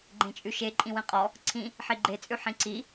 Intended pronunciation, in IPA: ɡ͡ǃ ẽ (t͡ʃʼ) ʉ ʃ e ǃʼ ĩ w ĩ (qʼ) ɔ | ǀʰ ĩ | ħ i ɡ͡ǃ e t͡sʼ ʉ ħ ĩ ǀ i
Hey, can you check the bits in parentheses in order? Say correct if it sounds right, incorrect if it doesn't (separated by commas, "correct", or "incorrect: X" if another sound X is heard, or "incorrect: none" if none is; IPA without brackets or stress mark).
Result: correct, correct